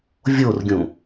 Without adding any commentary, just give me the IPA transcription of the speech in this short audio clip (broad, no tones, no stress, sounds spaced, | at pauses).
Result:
vʲ o r ɡʲ ũ